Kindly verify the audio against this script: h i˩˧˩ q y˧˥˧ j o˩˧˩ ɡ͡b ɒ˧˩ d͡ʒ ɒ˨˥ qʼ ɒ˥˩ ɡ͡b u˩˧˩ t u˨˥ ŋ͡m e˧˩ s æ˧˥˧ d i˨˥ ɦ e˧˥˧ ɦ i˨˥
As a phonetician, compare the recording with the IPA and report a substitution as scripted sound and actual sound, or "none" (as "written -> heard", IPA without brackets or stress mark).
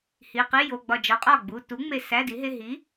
y˧˥˧ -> i˧˥˧